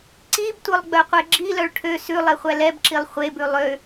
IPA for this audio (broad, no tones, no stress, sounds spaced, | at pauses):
ǀ i b tʷ œ lˠ ɡ͡b œ qʷ e ɡ͡ǁ i l œ ɭ ʈʰ ø s ʉ lˠ e χʷ æ l ɛ b ǁ i lˠ χʷ e b ʉ lˠ ø